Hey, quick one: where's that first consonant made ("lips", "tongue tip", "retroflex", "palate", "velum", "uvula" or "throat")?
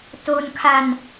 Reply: tongue tip